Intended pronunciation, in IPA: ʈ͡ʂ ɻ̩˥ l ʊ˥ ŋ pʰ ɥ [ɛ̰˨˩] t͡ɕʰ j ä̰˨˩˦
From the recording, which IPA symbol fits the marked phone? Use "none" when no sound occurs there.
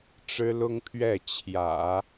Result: ɛ˥˩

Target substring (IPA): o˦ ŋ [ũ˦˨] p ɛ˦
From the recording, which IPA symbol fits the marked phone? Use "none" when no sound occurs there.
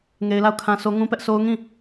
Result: ũ˦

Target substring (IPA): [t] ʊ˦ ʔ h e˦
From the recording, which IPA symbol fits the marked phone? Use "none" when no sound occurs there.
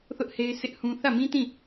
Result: θ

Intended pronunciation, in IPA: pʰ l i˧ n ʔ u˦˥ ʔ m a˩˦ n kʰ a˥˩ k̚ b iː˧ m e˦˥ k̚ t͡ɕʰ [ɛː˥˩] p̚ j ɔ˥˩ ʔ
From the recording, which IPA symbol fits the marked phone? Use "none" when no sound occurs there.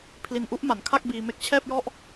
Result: ɛː˥˩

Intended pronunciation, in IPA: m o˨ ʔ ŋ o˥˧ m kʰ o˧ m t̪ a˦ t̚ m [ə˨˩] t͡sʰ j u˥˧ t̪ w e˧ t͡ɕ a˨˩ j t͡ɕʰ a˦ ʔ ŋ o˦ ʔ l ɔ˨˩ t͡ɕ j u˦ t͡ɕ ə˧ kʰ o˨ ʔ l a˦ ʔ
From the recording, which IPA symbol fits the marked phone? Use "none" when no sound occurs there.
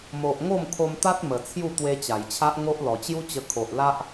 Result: ə˨˩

